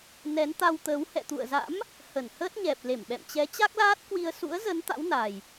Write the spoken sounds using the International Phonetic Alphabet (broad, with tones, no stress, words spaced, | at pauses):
nɛ˨˦nt̪a˧wt̪əː˨˦w hɛ̰˧˨t̪ṵ˧˨ə̯za̰˧˥m | hə˧˩nhəː˦˥t̚ɲɛ˨˩p̚ le˧˩mɓɛ̰˧˨mt͡ɕɛ˨˦ t͡ɕa˦˥k̚laː˦˥t̚kwi˧ə̯ sṵ˧˥ə̯zə˨˦n t̪a̰˧˥wna˨˩j